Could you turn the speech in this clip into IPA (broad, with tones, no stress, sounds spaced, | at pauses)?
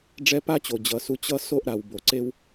ɖ͡ʐ ɛ˥ p a˥ t͡ɕ o˩ d͡ʑ ʌ˩ s u˨ t͡ɕ ʌ˦ s o˥ ʔ ɾ a˩ w b o˩ ǀ e˦ w